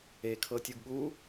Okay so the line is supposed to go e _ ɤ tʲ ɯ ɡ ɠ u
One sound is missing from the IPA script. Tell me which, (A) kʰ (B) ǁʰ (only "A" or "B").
A